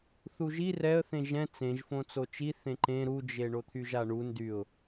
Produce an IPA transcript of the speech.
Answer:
θuʒi rɛə̯θẽ ʒɛ̃ t͡sẽʒfõ t͡sot͡ʃi θẽǃẽ ɾud͡ʒe ɳot̪ʰyʒaɳu ndyʊ̯

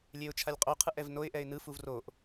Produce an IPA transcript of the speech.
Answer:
lʲeʊ̯t͡ʃʰalʲqʼoqʰɯʔ ɛvnoɪ̯ʔɛɪ̯ nɯfuv roʔ

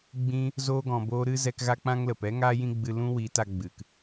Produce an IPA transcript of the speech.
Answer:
ɡ͡bĩ˧ | zoː˧ɡɔ̃˨boː˧ ɾɨ˦zɛ˧k ɣa˦k͡pã˦ŋlə˨p ɛ˦ ŋaː˦jĩ˦ɡ͡bɨ˧ lũ˦wi˨˦ta˧ ɡ͡bɨ˨k

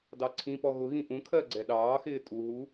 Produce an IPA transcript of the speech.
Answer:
dɑǀʰĩpɔ ɣʊɣĩ ʔũkʰɜ ɡ͡ǀɛɗɑːxɪː tʼuɦu

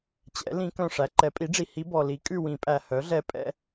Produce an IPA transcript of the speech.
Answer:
t͡ɕɛ̰˩˥ lĩ˧˥ kœ̃˦˨ʂæ˩˥ ǃɛ˩˥pʼi˩˥ɖ͡ʐi˨ hi˧˥bɔ˨ li˩˥kʼʉ˦˨ wĩ˨˩˦pʼæ˨hœ˩˥ɮɛ˧˥ pʼɛ̰˧˥

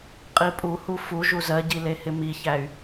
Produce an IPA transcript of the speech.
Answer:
qʼipʼuhu fu ʒuzɜɟi lehɪmiçæy̯

